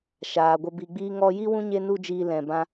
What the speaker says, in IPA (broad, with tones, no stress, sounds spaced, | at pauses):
ʃ aː˨ ɡʷ ə˧ b i˧ ɡ͡b iː˧ ŋ ɔ˧ j i˦ w ũ˦ ɲ e˦ n u˦ d͡ʒ iː˧ l ɛ̃˨ b ã˧